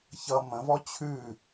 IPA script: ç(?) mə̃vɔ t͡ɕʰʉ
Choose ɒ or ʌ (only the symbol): ʌ